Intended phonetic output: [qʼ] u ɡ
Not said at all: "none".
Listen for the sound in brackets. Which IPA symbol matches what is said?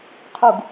qʰ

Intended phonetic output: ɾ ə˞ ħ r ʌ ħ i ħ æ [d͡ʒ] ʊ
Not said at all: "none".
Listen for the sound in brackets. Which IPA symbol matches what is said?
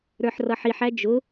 d͡ʒ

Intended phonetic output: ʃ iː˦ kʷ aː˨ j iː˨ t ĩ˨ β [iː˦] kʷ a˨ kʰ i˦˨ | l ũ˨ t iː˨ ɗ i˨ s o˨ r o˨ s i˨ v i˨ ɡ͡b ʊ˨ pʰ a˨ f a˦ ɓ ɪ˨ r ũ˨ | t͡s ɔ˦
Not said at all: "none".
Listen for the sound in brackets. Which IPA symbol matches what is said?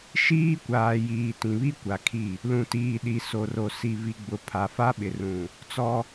i˦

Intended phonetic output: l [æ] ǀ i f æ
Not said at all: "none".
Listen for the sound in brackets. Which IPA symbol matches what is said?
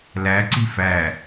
æ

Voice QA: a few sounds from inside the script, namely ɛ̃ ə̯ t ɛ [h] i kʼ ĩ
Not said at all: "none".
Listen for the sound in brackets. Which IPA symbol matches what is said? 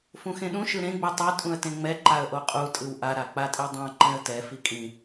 f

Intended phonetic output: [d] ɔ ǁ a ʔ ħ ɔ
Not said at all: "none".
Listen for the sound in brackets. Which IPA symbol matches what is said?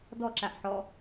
d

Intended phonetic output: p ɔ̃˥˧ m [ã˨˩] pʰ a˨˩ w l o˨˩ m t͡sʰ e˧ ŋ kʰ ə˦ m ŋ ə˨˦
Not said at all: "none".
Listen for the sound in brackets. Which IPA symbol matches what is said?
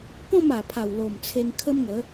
a˨˩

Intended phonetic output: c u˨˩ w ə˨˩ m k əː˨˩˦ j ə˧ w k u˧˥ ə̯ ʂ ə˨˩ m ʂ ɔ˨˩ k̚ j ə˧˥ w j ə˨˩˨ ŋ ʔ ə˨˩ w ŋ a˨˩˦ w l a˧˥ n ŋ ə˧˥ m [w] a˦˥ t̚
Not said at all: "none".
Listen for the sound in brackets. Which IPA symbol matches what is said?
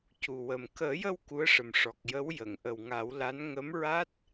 ɹ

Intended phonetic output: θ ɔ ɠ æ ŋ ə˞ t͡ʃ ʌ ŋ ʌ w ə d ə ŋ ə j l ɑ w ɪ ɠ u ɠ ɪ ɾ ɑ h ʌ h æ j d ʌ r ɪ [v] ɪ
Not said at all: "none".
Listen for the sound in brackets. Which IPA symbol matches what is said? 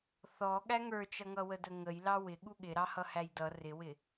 w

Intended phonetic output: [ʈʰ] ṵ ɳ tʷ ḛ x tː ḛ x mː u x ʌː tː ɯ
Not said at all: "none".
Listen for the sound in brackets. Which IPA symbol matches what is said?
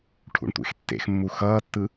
ʈʰ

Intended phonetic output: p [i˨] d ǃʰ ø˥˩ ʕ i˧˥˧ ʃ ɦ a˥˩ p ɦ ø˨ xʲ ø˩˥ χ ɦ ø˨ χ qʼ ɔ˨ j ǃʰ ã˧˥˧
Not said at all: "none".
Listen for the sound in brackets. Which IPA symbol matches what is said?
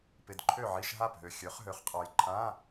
ɪ˨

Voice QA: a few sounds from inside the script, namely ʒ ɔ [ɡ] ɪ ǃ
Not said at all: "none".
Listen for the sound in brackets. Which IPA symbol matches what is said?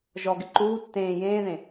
ɡ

